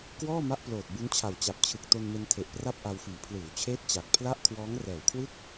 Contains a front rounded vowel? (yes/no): no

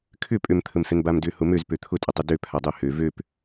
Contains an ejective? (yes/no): yes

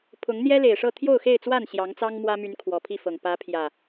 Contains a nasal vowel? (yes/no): no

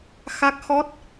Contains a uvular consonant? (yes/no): no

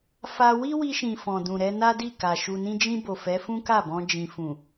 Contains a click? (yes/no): no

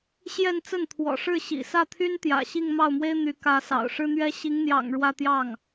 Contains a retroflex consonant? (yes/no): yes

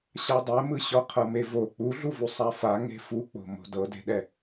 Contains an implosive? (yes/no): yes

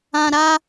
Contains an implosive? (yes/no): no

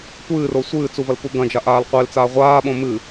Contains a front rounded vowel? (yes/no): no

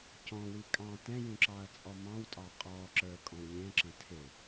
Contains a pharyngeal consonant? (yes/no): no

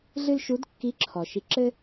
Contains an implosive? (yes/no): no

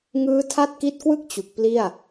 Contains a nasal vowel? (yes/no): no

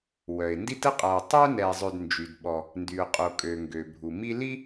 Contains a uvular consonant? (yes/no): yes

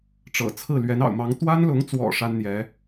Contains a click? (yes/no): no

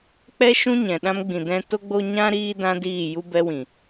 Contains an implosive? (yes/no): yes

